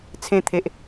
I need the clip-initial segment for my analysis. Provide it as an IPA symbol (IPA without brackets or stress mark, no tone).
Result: t͡sʰ